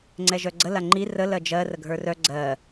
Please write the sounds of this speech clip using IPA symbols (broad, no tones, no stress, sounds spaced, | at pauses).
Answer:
ŋ͡ǀ ɛ ʒ œ ɡ͡ǀ ə l a ŋ͡ǃ i r ə l ɜ d͡ʒ ɜ r ə ɡʱ ə˞ r œ ɡ͡ǀ ɜ